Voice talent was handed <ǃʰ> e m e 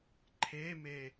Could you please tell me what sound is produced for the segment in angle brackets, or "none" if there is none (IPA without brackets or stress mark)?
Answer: ǃʰ